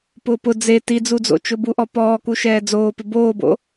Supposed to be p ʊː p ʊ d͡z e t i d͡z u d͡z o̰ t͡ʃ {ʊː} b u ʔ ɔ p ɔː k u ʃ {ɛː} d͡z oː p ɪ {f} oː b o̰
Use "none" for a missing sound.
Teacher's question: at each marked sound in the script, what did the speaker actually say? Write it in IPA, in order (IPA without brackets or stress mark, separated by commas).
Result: ʊ, ɛː, b